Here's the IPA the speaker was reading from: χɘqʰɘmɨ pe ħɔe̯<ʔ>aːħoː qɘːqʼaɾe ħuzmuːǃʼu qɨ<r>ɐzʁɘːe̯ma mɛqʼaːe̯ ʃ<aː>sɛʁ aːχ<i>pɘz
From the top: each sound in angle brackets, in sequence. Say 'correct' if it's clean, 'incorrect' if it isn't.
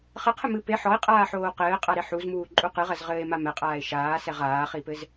incorrect: qʼ, incorrect: ʁ, correct, correct

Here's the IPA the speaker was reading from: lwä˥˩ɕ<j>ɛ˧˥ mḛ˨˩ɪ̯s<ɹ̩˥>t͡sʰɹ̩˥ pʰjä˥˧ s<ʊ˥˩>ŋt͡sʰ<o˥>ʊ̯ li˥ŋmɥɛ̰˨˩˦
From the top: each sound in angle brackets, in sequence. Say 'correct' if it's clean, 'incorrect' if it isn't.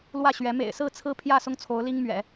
incorrect: ɥ, incorrect: ɹ̩˥˩, correct, incorrect: o˧˥

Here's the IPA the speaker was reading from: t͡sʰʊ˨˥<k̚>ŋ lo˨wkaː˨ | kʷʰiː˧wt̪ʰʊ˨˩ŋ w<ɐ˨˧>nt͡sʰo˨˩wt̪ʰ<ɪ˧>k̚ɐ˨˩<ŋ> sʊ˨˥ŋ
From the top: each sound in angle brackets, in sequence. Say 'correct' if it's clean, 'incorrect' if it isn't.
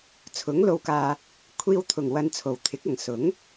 incorrect: none, incorrect: ɐ˧, incorrect: ɪ˨˥, correct

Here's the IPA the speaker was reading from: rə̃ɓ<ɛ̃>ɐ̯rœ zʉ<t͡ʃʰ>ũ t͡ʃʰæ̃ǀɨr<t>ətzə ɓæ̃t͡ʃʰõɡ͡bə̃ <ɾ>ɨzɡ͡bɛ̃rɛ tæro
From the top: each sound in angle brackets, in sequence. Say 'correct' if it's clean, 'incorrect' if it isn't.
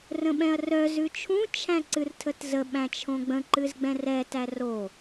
correct, correct, incorrect: tʰ, incorrect: ǃ

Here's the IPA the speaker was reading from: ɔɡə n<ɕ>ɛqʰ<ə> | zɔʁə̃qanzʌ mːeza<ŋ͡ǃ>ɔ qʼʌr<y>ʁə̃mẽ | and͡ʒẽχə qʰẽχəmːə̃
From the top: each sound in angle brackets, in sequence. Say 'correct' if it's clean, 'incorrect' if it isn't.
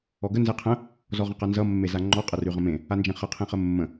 incorrect: z, incorrect: ə̃, correct, correct

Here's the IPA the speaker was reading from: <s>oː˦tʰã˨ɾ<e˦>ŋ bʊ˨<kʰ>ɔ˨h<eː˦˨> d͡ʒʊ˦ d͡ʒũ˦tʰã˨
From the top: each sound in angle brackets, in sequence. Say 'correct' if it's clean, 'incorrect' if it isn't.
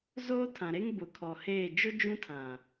incorrect: z, correct, correct, correct

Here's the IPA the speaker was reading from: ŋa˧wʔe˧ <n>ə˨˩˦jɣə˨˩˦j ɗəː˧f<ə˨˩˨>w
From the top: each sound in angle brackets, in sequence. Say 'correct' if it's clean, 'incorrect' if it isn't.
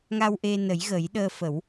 correct, incorrect: ə˨˩˦

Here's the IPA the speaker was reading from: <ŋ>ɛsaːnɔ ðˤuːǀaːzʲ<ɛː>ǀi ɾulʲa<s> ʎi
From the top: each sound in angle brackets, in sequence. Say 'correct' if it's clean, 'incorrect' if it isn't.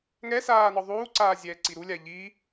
correct, correct, incorrect: none

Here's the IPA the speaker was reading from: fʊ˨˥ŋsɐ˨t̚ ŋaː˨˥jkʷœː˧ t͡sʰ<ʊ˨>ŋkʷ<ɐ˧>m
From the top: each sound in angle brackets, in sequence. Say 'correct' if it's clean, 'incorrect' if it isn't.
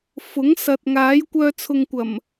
correct, incorrect: ɐ˨˩

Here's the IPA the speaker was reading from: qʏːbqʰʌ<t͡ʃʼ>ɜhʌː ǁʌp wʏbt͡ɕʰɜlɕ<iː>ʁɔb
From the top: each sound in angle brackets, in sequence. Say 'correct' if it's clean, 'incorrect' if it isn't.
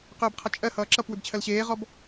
correct, incorrect: eː

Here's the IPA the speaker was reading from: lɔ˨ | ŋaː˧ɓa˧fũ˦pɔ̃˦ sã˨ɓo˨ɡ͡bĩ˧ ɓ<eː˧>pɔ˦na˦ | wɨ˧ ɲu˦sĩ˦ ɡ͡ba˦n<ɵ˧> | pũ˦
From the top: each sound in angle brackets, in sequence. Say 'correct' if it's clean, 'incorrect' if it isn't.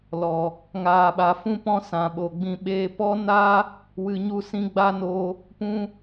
correct, incorrect: o˧

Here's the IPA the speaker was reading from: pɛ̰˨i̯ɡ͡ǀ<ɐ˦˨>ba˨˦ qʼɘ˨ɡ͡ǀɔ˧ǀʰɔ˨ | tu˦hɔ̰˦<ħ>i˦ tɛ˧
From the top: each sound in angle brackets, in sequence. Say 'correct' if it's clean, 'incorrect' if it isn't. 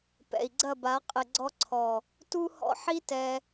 correct, correct

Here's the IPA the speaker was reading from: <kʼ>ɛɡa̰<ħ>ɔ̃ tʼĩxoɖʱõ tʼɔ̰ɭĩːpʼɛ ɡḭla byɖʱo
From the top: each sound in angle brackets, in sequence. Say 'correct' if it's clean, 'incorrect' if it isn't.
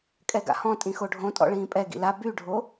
correct, incorrect: h

